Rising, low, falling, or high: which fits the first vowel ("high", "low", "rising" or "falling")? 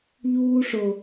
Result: high